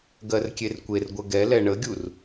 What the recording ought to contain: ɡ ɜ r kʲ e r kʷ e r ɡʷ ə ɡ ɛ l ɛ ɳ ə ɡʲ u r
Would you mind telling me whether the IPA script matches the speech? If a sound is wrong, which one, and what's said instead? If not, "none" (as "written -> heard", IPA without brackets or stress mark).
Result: none